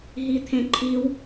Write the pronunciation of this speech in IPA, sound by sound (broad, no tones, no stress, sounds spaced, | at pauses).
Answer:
ɦ i t̪ʰ ẽ ǃʰ i w